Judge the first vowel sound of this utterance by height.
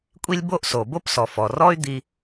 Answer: high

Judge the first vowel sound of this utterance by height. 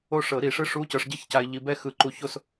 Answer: mid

